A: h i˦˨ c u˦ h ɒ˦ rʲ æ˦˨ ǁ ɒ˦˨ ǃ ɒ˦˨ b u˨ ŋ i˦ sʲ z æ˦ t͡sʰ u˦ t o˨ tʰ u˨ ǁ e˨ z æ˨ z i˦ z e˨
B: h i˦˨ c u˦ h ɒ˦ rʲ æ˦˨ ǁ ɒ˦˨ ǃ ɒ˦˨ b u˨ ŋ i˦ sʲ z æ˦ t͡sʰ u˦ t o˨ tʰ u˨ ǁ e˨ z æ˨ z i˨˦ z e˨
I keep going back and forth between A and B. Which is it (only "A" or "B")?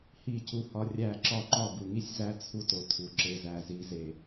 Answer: B